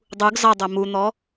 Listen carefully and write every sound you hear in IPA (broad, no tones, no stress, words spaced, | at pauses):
dˤuɡ zɑdˤæ mun̪ɔ